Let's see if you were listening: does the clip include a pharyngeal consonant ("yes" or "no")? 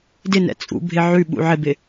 yes